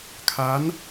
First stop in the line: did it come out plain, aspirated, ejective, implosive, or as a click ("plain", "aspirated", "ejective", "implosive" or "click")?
aspirated